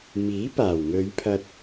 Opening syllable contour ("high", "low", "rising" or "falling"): rising